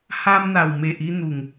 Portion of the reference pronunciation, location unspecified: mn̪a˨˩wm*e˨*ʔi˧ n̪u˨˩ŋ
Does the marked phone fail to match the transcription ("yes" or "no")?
no